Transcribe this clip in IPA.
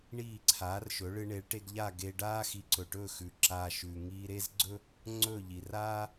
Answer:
ɳ iː˥˩ ǀʰ aː˩˥ r ʃ ɵ˩˥ ɭ ɨ˧ ɳ e˩˥ ɭ ʈ e˧ ɡ ʎ a˥˩ ɡ e˧ ɖ aː˥ x i˩˥ ǀ ɵ˩ ʈ ɵː˥˩ x ʉ˩ ǁ aː˧ ʃ ʉ˩ ŋ iː˧ ɾ e˥ z ɡ͡ǀ ɵ˥ | ŋ͡ǀ ɵ˥˩ ʎ i˩ r aː˥

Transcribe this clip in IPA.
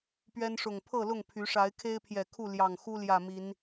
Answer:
p ɥ ɛ˦ n ʂ ʊ˨˩ ŋ pʰ ɤ˥˨ l ʊ˥˨ ŋ pʰ y˨˦ ʂ a˨˦ ɪ̯ kʰ e˦ ɪ̯ pʰ j ɛ˨˩ kʰ u˥˨ l j ɑ˨˩ ŋ x u˦ l j ä˨˩ m i˨˦ n

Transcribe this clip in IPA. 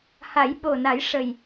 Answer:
h a˨˩˦ j ɓ o˨˩ n a˨˩˦ j ʂ ə˨˩ j

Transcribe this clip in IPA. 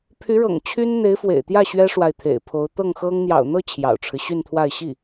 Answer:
pʰ y˧˥ ɻ ɤ̰˨˩ ŋ t͡ɕʰ y˥ n n̪ e˧˥ ɪ̯ f w ḛ˨˩ ɪ̯ t̪ j ä˥˩ ɕ ɥ ɛ˥ ʂ w a˨ ɪ̯ t̪ʰ ḛ˨˩ ɪ̯ pʰ o˧˥ ʊ̯ t̪ ɤ˥˩ ŋ x ɤ˥ ŋ n̪ j ɑ̰˨˩ ʊ̯ n̪ ɤ˥˩ t͡ɕʰ j ɑ̰˨˩ ʊ̯ ʈ͡ʂʰ ɻ̩˦ ɕ y˥˧ n t̪ʰ w a˥˧ ɪ̯ ɕ i˥˩

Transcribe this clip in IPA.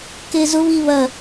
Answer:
k e z ʊ β i β ɐ

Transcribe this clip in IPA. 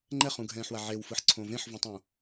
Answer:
ŋ͡ǃ ɛ χ ũ ɡʱ ɛ̃ː ħ w a ʕ e w f ɯ ħ ǀʰ õ v ẽ ħ v ũ tˤ õ

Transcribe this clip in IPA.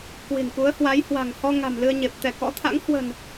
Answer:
k w i̤˨˩ n k u˨˦ ə̯ h w a˨˦ j h w a̤˨˩ ŋ h ɔ˧ ŋ a̤˨˩ m l ɨ˧ ə̯ ɲ e˨˩ p̚ t̪ ɛ˧˩ k ɔ̰˧˥ t̪ʰ a̰˧˥ ŋ h w ə̤˨˩ n

